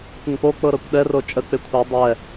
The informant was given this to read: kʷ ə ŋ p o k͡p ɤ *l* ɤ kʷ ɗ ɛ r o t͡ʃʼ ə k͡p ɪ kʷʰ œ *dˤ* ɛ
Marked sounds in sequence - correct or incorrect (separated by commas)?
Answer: incorrect, correct